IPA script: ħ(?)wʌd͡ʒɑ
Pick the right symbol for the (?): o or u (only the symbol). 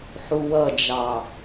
u